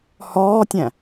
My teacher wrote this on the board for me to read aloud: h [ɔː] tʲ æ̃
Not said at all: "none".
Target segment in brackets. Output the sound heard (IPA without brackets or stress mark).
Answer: ɔː